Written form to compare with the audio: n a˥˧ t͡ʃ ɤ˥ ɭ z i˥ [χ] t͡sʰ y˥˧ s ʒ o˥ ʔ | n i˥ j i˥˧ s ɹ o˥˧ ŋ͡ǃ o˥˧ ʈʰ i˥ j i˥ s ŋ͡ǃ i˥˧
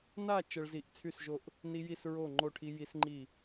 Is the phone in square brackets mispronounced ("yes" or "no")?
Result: yes